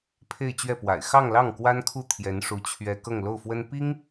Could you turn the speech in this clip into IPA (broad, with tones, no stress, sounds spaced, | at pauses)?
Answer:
pʰ e˥˧ ɪ̯ t͡ɕ ɥ ɛ˥˩ p w a̰˨˩ ɪ̯ x ɑ˥˧ ŋ l ɑ˥˩ ŋ k w a˥ n kʰ u˥˩ t̪ʰ j ɛ˧˥ n ʂ u˧˥ t͡ɕʰ ɥ ɛ˥ k ɤ˥˧ ŋ l o˥˩ ʊ̯ f w ə˥ n p i˥ ŋ